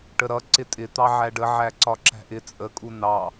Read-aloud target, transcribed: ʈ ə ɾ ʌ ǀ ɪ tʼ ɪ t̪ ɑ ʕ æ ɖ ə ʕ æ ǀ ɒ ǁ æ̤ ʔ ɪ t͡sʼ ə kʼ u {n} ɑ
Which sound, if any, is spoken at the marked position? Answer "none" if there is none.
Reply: n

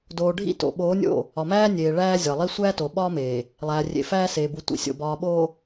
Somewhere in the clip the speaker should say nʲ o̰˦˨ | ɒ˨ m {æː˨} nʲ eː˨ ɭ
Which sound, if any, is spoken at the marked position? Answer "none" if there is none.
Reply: æː˦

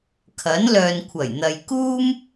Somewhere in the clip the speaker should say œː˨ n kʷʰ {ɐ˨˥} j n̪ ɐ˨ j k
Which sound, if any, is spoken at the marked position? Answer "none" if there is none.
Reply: ɐ˨˩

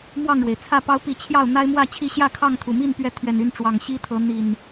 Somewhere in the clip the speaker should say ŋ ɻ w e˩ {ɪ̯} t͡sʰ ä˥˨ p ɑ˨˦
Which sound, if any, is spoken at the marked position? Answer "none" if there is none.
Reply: ɪ̯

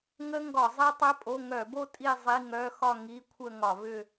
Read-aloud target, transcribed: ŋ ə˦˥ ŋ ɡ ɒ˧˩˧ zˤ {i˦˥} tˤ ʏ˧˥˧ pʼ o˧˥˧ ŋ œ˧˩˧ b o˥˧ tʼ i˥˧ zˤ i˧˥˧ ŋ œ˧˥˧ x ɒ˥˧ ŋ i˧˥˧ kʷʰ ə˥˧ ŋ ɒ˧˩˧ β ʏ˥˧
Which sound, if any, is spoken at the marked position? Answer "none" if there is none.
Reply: i˦˥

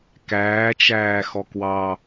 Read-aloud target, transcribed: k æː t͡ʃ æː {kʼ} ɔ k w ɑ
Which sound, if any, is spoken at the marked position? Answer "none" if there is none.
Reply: x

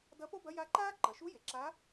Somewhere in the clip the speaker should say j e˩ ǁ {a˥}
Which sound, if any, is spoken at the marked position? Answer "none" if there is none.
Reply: a˧˥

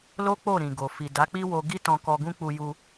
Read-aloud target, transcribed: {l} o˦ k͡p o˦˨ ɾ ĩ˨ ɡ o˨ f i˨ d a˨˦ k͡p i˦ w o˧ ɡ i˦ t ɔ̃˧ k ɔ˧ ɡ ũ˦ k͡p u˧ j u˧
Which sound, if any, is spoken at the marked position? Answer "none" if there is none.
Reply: l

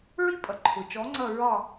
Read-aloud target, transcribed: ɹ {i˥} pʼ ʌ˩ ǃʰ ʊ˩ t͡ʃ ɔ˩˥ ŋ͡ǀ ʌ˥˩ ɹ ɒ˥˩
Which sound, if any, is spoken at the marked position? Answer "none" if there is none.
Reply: i˥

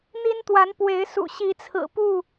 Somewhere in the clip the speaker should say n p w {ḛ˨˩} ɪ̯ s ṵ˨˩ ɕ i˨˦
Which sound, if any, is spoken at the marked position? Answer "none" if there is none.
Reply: e˨˦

